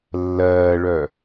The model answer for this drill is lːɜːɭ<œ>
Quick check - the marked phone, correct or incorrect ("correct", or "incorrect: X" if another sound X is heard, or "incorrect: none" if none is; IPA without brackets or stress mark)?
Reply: correct